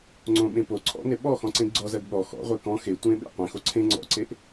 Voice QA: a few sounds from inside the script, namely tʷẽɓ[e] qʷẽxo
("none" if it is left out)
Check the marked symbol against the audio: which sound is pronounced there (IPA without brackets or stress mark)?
ḛ